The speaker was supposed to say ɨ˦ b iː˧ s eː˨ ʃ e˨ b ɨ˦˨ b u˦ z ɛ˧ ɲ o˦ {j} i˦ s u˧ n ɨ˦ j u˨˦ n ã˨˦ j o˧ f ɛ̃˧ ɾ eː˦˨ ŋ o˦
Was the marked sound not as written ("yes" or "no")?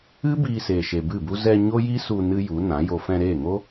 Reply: no